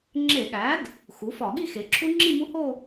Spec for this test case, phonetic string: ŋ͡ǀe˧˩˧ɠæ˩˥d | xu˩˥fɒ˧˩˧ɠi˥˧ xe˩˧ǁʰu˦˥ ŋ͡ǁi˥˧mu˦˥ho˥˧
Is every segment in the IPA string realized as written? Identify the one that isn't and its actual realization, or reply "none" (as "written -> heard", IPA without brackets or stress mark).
ŋ͡ǀ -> ŋ͡ǁ